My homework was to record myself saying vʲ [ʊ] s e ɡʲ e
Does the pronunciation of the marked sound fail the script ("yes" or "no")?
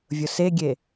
no